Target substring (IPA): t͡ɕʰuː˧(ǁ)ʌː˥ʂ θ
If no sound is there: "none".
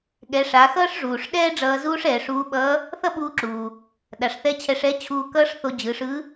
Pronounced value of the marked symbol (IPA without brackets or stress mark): k